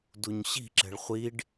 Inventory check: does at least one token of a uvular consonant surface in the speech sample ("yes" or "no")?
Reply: yes